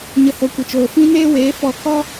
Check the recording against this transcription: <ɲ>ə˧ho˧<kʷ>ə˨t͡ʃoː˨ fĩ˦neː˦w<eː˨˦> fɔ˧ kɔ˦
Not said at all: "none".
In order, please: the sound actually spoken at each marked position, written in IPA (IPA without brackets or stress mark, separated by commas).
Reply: ɲ, kʷ, eː˨˦